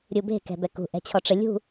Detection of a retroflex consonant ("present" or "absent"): present